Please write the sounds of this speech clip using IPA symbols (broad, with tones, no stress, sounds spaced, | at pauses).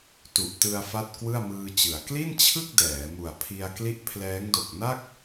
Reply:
t u˨˩ ʔ t ɯ˧ a̯ f a˥˩ t̚ k w ɯ˥˩ a̯ m ɯː˧ t͡ɕ ɯ˩˦ a̯ k l i˥˩ n t͡ɕʰ ɯ˥˩ k̚ d ɛː˩˦ m u˨˩ a̯ pʰ i˧ a̯ k l i˦˥ ʔ pʰ l ɛː˦˥ ŋ d o˨˩ k̚ n a˥˩ k̚